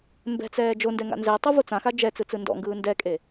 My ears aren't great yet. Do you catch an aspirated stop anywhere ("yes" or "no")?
no